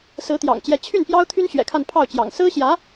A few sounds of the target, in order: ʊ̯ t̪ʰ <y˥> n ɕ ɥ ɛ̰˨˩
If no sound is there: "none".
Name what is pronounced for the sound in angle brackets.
y˥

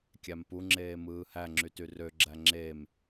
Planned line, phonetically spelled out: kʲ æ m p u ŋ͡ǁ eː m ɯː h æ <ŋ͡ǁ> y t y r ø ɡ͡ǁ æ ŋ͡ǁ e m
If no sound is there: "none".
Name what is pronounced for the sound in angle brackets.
ŋ͡ǁ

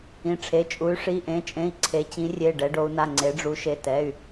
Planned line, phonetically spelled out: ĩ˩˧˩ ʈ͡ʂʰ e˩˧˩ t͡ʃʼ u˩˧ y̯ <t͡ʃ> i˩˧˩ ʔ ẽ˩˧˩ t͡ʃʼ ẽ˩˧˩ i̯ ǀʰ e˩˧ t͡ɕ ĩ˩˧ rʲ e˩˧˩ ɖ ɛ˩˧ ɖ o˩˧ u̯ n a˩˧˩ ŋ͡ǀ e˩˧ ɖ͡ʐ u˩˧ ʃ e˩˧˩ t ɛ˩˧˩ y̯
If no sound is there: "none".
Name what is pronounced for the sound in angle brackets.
ʂ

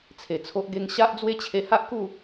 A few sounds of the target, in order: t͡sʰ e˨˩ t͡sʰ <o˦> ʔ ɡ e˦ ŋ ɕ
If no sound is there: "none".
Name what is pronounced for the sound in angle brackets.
o˦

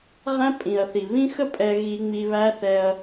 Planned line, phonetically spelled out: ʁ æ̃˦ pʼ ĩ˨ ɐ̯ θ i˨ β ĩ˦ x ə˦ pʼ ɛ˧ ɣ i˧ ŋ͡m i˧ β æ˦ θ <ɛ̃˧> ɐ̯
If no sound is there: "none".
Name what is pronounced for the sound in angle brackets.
ɛ˧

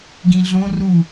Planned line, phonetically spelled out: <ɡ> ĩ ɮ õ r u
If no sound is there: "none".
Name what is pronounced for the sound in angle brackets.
ɡ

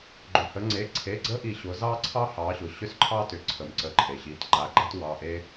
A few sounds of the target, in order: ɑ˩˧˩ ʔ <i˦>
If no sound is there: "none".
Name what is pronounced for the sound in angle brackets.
e˦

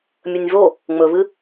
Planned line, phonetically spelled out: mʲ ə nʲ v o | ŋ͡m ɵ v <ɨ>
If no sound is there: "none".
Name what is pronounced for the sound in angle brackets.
ɨ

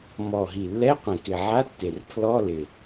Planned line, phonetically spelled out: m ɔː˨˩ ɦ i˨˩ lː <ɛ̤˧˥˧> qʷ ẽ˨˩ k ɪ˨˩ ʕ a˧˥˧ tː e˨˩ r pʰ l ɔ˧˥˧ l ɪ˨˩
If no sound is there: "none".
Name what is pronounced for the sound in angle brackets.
ɛ˧˥˧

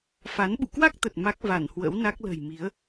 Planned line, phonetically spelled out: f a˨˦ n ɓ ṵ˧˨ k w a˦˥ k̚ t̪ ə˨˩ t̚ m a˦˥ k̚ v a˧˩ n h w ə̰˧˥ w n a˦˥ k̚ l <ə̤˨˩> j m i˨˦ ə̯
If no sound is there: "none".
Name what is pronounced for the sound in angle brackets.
ə̤˨˩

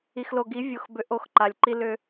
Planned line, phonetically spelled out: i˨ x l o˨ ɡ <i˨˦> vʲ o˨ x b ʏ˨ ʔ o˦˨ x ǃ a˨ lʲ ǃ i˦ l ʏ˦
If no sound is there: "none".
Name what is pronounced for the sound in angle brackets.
i˨˦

